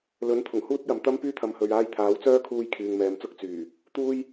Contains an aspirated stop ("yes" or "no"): yes